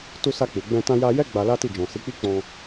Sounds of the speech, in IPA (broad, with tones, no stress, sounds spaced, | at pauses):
t u˧ s a˧ k͡p u˨ ɡ͡b ɛ̃˧ t ã˧ j a˧ j ɛ˦ ɡ͡b a˧ l a˦ t i˦˨ d͡ʒ ɔ̃˨ s i˨˦ k͡p i˦ k͡p ɔ̃˧